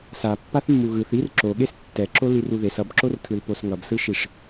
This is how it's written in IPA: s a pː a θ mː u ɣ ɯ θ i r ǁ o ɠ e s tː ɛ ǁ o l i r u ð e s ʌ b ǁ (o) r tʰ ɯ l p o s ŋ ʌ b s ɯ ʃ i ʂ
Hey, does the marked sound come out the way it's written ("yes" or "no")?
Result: yes